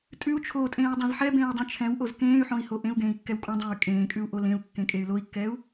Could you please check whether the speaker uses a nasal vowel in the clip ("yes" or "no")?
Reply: yes